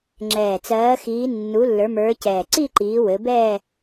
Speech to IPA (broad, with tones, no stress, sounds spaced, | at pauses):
ŋ͡ǁ ɛː˨˩ t͡s ɜː˨˦ x iː˨˦ nː u˨˦ lː ə˞˨˦ m ə˞˨˦ c ɛː˨˩ ǀ i˥˧ ǃ iː˨˦ w ɘ˨˦ b ɛː˥˧